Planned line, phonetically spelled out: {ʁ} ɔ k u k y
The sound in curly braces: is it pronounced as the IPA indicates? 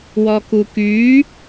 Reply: no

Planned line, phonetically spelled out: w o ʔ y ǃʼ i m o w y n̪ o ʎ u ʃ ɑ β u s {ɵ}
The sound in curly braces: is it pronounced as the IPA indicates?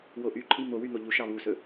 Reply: yes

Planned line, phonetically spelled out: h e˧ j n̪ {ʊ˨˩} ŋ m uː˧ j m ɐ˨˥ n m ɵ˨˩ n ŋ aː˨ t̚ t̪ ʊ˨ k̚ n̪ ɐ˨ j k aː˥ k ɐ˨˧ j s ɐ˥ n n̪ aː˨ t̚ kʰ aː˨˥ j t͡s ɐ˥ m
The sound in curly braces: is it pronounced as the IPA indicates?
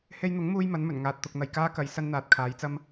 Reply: no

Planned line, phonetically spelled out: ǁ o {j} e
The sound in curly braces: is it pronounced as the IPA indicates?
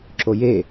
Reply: yes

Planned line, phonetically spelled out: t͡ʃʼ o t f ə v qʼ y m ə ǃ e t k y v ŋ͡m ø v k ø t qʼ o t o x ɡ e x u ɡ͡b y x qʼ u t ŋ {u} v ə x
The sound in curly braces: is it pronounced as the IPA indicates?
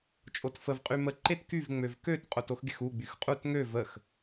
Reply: no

